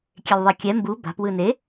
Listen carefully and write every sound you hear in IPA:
kʲelʲðˤɛkʲɛ mbu ba̤p wɯne

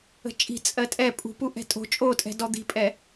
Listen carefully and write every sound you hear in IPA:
ə̤t͡ʃʼi̤ t͡sʼɜtʼɛ pʼṳpu ʔɛ̤tʼo̤ t͡ʃʼotʼɛ̤ dɔd̪i̤pʼɛ

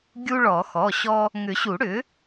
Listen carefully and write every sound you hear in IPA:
ɡʲu˦ɭɔ˨˩˦ xɔ˩˧˩ɕɔ˦ | ŋʏ˨˩˦ɕu˨˩˦ɽʏ˩˥

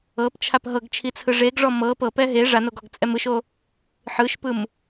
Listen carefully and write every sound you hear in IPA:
ɤpt͡ʃʰap ɦɤɡt͡ʃʰit͡sʰɯ ʐeɡʐɔ mɤ pɤpɛ ɦe ʐanoɡɔɡt͡sʼɛm ɯʃo | ħɯʃpɯm

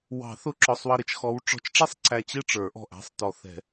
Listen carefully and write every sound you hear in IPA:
wɑ̤˨˩˦θʊ˨˦ǁɔ˩˧˩sˤ wʌ˧˩ɾɪ˧˩t͡ʃ xɔ˨˦w ʈ͡ʂɔ̤˨˦t͡ʃʈ͡ʂɛ˥˨sˤ ǀæ˧˩t͡ɕɪ˥˨ʈ͡ʂə˞˨˩˦ ʔɔ̤˧˩ʔ æ̤˦sˤ tɔ˨˩˦θ ɛ̤˨˩˦

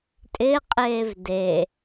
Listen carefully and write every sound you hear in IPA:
tʼɪqʼeːv de

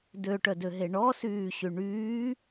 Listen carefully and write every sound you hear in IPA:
døʈœdøɦe ɳɔsyːɕy ɳyː

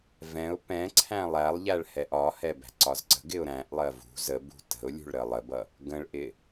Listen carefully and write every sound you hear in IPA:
vɛ̃ʊ̯ pɛ̃ ǀʰæ̃lˠælˠʎæɭ hɛʔɒhɛ bæ̤ǀɒzǀə̤ɡɪʊ̯ ɾæ̃ʔlˠɜ vṳ zəbṳ tə̤ʊ̯ lʲṳɭɾəlˠəbʌ | ɡə̃ɭʔɪ

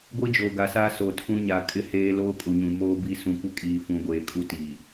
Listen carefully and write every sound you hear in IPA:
ɡʷi˦d͡ʒoː˨ɡa˨saː˦ so˨tʰũ˦ɲa˨˦ kʼɪ˦heː˦ loː˦kʼu˨ɲũ˨ moː˦bi˦ sũ˨kʷɪ˦ kʼiː˨fũ˨ɡʷeː˨kʼu˦ tiː˨

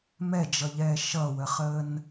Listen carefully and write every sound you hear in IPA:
mɛd͡ʒʌʎɛː ʃʌwəχəːn

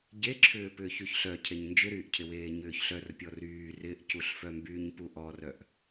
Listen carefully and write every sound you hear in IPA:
ɟeǁʰʏːpʏːç yçɬœcʰeɲ nd͡ʒɪɾyːʔcʰɪweː ɲʏːçɬœr pʲɔryː rɪʔcuɬfœ mbyːɲpuʔɔrœʔ

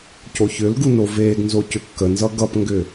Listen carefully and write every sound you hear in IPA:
coçʏlɡu noveːɡnzo cʏkːənzʌ ɡʌpŋɡʏ

